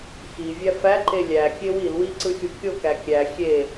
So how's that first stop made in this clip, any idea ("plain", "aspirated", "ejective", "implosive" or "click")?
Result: click